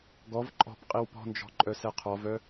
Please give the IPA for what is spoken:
ɡɔv ǃʼɔ̤p qʼiwpɔ̤nd͡ʒɔ̤ǃʼœ sɛqʰɔvœ

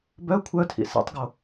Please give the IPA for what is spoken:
bœ kʷʰœtʰḭ sɛ̰tˤɡo

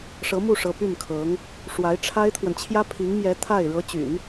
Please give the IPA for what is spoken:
ʂɤ˧˥mu˥˩ʂɤ˧˥ py˥˩nkʰɤ˧˥ŋ | ʂwa˧˥ɪ̯ʈ͡ʂʰa˥ɪ̯t̪ʰwə˨n t͡ɕʰjä˥pʰi˧˥ŋmjɛ˧˥ t̪ʰa˥˩ɪ̯ ɻɤ˧˥t͡ɕy̰˨˩˦n

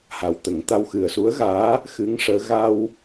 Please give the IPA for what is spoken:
ha˨˩wt̪ə˨˩˦ŋt̪a˧w xɨ˨˩ə̯su˧˥ə̯ɣaː˧˥ | xɨ˧˥ŋʂəː˧˥ ɣa˧w

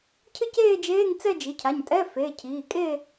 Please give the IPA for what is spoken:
cʰɨ˥˧ceː˥˧ d͡ʒeː˧˥˧ŋt͡sɛ˥˧d͡ʒi˩˧˩cʰa˩˧˩ɲ tʼɛ˧˥˧fe˩˧˩ cʰiː˩˧˩kʼe˥˧

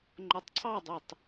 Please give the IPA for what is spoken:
ŋ͡ǃotˤǀʰɑdˤytˤ

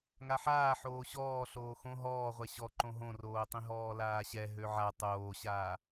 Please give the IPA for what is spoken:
ŋaħaː ħoːɕɔː ɬoːxõ ɦɔːʁʷɛ ɕɔ ǃõɦõroːtˤĩ ɦɔːlaːɕɛ ɦøʕa tˤoːɕaː

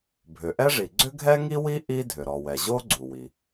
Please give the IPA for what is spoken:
bʱʏ˩ʔɛ˥ʐi˩ ɡ͡ǀʏ˥ɡʱɛ˥ŋi˥wi˥ ʔi˥ dʱʏ˩ɾɔ˩wɛ˩ ʑo˥ ɡ͡ǀu˩wi˩

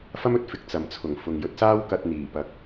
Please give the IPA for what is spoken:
fɐ˥mɵ˥t̚fɪ˨˥k̚ t͡sɐ˨mt͡sʰʊ˨˩ŋfʊ˨ŋ jɵ˧t̚saː˥w kɐ˧t̚ n̪iː˨˩pɐ˨˥k̚

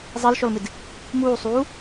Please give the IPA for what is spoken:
zˤilʃɔlmɪd | muːsˤuː

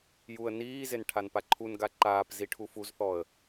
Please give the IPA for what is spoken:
juə̯ niːzen ʈʰanpaǃʰunɡa ǃaːpzi ʈʰufuzθɔə̯

